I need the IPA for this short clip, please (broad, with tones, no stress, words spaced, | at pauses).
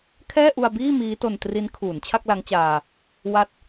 kʰɛː˥˩ʔu˧a̯biː˥˩ miː˦˥to˧ntri˦˥n kʰuː˩˦nt͡ɕʰa˥˩k̚ la˦˥ŋt͡ɕaː˧ | wa˦˥t̚